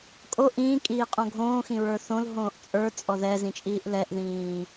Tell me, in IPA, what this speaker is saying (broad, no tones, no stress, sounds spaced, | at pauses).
kʼ o ʔ ĩː kʼ iː qʼ õ ɡʱ õː x ĩ ɹ ə˞ θ õ l ɦ õː ʔ t͡sʼ ə˞ t͡sʼ ɔ ð ɛ z ĩ t͡ʃʼ iː ʔ l ɛ ʔ ð ĩː